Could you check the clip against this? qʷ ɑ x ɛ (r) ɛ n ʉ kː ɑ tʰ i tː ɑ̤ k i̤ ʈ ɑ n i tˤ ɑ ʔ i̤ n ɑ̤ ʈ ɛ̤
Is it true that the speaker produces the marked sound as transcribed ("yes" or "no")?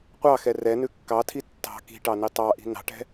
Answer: yes